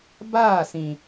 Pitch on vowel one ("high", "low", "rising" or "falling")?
falling